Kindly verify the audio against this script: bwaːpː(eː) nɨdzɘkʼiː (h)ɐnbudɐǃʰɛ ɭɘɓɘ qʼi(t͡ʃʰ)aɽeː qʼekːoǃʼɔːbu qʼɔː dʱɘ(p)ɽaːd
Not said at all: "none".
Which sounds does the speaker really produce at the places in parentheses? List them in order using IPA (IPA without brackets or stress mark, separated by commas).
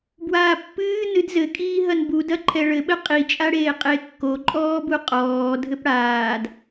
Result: ɨː, ɦ, t͡ʃʼ, p